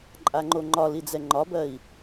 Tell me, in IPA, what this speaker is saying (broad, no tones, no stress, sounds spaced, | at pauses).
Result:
ǃʼ a ŋ͡ǃ o ŋ͡ǃ ɒ l i d͡z ɛ ŋ͡ǃ ɒ b ɜ i̯